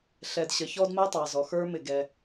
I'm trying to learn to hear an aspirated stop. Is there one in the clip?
no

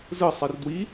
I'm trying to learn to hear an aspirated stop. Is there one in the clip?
no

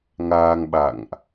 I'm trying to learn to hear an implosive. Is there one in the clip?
yes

